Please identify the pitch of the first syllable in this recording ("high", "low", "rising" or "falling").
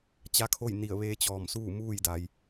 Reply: rising